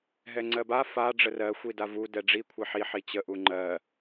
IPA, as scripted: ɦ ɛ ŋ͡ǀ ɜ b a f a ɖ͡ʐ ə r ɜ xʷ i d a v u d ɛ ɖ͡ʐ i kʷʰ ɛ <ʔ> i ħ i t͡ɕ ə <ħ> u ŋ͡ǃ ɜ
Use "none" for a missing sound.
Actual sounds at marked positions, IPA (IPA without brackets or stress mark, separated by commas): ħ, ʔ